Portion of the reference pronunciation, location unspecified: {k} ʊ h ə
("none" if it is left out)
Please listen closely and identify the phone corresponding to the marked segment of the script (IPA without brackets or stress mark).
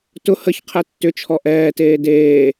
t